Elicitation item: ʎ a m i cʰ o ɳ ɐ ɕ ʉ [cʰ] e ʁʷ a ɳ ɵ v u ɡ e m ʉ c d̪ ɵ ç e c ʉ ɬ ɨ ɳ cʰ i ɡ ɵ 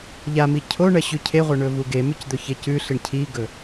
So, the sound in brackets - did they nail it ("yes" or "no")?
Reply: yes